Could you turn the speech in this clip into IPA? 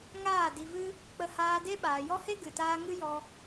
ŋaː˦˨di˧vɨ˦ | k͡pə˧haː˧de˦ ɓaː˨jɔ˦he˦ ɡɨ˨ taː˧ŋɨ˦jɔ˧

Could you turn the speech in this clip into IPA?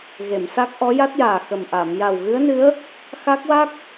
ɣe˨˩˨msa˦˥k̚ ʔɔ˧˥ja˦˥t̚jaː˨˩ xə˨˩mʔa˨˩˨m ja˨˩wɣɨ˧˥ə̯nɨ˧˥ə̯ | xa˦˥k̚wa˦˥k̚

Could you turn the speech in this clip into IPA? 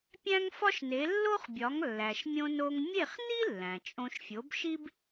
pʲæ̃˥ŋfɒ˥ʃne˩˥ lːo˥χbʲɒ˩˥ŋ lːæ˩ʃmʲõ˧no˧ŋ mʲe˥˩χni˥ lːæ̃˩t͡ʃʼõ˧ʃ fʲo˩˥bʃi˥b

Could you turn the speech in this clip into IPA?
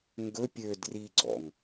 ŋɡɵ pʲø driɡ͡ǀɔ̰ŋ

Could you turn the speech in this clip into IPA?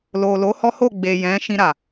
lo˨lo˨˦ hɔ˦ho˦˨ ɡ͡be˨ jɛ̃˨˦ ʃĩ˧ɾa˨

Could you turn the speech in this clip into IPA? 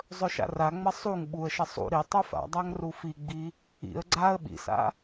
zˤɵʃa̰raŋ͡mɐ sˤuŋ ɓuə̯ʃɐ sˤṵ ɾi tˤɵfa̰dˤaŋ rufiɡ͡bi | ḭə̯ ɡ͡ǀaə̯ ɓḭsa̰

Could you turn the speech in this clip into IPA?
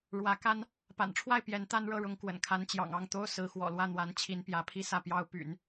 ɻwä˧˥ka˥n | pa̰˨˩nʈ͡ʂʰwa˥˩ɪ̯ pjɛ˧˥nt̪a˥nɻɤ˥˩ɻʊ˧˥ŋ kwə̰˨˩nkʰa˧˥nt͡ɕjɑ̰˨˩ŋ ɑ˥˩ŋt̪o˥ʊ̯ sɹ̩˧˥ xwɔ̰˨˩lwä˥˩n̪wa˧˥n t͡ɕʰi˧˥npjä˧˥pʰi˥ sä˥˩pjɑ˥ʊ̯ py̰˨˩˦n

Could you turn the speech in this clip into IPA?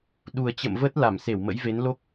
ɗu˨˩ə̯t͡ɕə̰˧˨mvə˦˥t̚ la˧˩mse˧˩wmə̰˧˥jve˨˦n lo˦˥k̚

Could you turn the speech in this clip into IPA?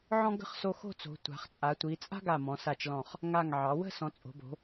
ʕɔ̃˥ɡə̤˥χ so˧xo̤˥˧t͡so̤˩˧ tʷa̤˩˧χt͡sʼa˩˧tʷi˩˧ t͡sʼa̤˥ɡa˧˩mɔ̃˩˧ sa˧˩t͡ʃlɔ̃˧˩χ | ŋa˧˩ŋʕɑ˩˧wə̤˥˧ sɔ̃˩˧t͡sʼo̤˩˧bo̤˩˧

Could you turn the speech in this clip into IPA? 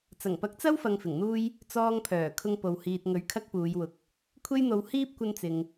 t͡sɐ˨˩ŋpɐ˨˥k̚t͡sɐ˥w fɐ˧ŋfɪ˨˩ŋn̪uː˥j | t͡sɔː˧ŋpʰœː˨˩ kʰʊ˧ŋpo˨w hiː˨t̚ŋɵ˨˥ɥ kʰɐ˥k̚puː˨˧j wʊ˨˥k̚ | kʷʰe˥jn̪o˧w hiː˥p̚kʷɐ˧nt͡sɪ˨ŋ

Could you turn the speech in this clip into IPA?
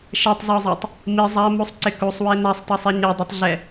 ʃɛtˤzɔzˤatˤ | mi zˤamusˤǀɪ kusˤwe nasˤtˤusˤi ɲɛdˤitˤɮɛ

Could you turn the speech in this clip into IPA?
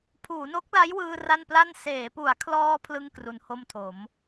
pʰuː˩˦no˦˥k̚la˦˥jwɯː˧ ra˥˩npla˥˩n seː˩˦pu˩˦a̯kʰlɔː˧ pʰlɯ˥˩ŋkru˩˦nho˥˩mtʰo˩˦m

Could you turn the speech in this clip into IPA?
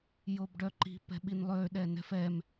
jobɖœǃi̤ pɛ̤ɓinlˠøɗɛ nɛ̤fɛm

